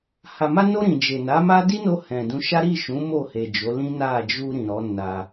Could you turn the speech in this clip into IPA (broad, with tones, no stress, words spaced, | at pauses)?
ha˨ma˧no˧ ɾĩ˨d͡ʒe˨na˨˦ ma˦ di˦no˧ hɛ̃˨dũ˧ʃa˦ ɾi˦˨ʃũ˨˦ mo˦˨ he˨d͡ʒo˨˦lĩ˦ na˦˨ d͡ʒu˧ ɾĩ˨ɾɔ˨˦ na˧